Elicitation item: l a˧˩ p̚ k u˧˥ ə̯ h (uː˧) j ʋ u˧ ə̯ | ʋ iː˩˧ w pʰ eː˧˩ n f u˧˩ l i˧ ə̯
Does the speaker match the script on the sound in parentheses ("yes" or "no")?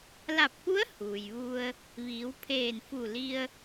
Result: no